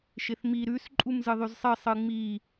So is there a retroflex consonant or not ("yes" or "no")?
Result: no